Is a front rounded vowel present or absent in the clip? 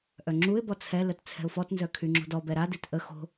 present